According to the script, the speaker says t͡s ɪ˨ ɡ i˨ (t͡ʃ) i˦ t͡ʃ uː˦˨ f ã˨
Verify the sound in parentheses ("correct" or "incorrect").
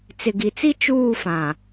incorrect